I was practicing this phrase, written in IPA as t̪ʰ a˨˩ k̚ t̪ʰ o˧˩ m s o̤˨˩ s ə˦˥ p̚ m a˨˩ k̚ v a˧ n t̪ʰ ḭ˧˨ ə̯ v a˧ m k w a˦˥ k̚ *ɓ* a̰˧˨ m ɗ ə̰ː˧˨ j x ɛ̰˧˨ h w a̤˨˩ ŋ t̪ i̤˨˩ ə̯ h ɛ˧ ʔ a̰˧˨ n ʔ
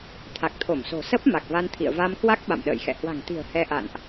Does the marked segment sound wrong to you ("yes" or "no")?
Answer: no